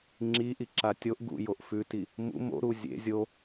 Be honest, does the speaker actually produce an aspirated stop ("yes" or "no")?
no